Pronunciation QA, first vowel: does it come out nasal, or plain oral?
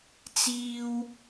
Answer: oral